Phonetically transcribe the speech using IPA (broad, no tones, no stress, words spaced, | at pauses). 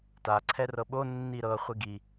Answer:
ta ǀʰɛrɤɓo nːiɾɤ χʷiɡi